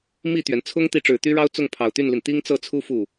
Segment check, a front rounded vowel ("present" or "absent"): present